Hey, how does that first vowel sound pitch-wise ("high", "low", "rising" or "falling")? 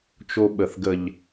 high